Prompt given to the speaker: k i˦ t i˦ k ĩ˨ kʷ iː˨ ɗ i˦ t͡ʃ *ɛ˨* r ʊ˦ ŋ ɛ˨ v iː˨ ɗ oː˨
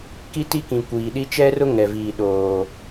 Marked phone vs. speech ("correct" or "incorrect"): incorrect